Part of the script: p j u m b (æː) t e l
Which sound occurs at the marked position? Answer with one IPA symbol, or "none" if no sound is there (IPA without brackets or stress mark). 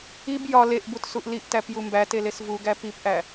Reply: æ